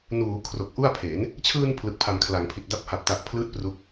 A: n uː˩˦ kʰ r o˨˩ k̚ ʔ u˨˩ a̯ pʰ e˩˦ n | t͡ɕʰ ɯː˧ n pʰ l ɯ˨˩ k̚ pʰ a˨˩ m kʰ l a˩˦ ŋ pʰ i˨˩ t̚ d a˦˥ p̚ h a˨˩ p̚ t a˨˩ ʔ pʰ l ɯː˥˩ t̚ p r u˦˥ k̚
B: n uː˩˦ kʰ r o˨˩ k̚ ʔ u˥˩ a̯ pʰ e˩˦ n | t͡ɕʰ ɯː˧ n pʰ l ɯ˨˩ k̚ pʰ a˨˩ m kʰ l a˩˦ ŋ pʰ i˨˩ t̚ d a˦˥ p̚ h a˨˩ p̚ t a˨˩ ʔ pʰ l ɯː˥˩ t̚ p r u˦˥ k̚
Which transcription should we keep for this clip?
B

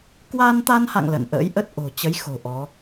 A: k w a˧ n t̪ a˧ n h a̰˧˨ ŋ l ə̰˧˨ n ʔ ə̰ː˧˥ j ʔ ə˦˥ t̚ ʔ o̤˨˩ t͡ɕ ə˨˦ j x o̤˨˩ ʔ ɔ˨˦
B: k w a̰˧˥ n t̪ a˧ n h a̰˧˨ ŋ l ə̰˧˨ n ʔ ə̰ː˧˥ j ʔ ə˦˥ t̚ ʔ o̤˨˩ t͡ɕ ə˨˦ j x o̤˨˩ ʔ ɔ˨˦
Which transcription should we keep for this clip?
A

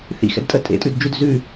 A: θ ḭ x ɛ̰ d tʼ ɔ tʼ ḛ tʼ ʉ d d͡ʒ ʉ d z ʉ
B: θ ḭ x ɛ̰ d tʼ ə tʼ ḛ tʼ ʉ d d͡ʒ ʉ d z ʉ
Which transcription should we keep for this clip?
B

